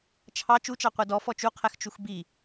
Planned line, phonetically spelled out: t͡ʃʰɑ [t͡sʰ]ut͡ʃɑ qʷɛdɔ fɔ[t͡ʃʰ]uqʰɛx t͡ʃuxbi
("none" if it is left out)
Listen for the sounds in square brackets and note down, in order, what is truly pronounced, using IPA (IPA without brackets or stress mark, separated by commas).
t͡ʃ, t͡ʃ